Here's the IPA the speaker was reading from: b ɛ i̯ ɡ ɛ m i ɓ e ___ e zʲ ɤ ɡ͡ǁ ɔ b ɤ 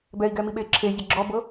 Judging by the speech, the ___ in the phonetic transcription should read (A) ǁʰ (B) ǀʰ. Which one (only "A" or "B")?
A